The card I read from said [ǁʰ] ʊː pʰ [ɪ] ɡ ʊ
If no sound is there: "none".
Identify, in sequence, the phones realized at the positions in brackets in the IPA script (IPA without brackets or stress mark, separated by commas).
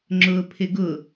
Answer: ŋ͡ǁ, ɪ